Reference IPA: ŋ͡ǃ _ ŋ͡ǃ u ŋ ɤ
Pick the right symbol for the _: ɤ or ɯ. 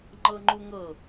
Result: ɤ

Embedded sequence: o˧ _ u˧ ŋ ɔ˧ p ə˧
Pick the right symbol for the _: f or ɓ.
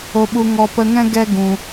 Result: ɓ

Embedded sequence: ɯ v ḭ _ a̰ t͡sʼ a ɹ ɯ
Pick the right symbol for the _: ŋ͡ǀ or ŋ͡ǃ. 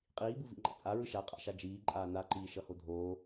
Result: ŋ͡ǃ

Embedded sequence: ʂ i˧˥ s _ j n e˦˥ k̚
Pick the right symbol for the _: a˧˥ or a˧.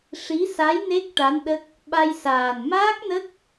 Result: a˧˥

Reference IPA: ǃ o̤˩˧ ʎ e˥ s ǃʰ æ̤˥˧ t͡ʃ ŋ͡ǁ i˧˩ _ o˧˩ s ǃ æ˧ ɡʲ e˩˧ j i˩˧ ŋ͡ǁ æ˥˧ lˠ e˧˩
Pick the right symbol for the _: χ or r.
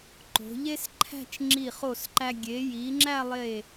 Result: χ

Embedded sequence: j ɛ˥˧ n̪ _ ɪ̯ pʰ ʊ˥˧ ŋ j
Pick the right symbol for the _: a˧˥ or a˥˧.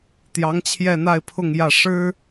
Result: a˥˧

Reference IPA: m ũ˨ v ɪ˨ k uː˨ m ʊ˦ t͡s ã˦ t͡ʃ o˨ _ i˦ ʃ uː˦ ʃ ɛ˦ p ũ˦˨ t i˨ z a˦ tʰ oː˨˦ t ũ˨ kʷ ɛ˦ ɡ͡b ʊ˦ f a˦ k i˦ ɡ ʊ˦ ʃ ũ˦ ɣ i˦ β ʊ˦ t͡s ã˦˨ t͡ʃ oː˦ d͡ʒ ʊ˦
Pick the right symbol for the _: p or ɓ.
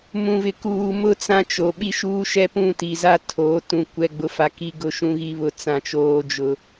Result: ɓ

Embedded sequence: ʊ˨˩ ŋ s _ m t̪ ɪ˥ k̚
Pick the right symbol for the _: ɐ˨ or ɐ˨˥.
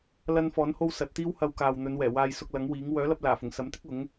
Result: ɐ˨˥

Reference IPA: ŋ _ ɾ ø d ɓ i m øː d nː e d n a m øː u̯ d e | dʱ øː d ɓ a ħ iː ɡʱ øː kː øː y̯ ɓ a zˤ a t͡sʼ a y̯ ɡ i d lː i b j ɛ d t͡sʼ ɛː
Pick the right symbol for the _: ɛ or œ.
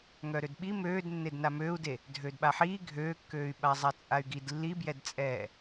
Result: œ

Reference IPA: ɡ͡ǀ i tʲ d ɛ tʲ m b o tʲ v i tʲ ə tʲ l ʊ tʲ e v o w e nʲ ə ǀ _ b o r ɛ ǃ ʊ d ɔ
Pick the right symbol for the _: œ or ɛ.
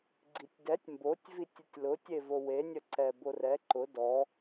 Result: ɛ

